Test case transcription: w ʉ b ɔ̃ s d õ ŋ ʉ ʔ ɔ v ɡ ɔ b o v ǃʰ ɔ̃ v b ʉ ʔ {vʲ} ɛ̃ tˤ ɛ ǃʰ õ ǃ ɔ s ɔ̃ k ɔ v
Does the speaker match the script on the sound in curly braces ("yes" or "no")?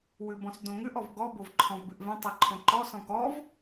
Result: no